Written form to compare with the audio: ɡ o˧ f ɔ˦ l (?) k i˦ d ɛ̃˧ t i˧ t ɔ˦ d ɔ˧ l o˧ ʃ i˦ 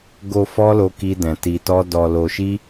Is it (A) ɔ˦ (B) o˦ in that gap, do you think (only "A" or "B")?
B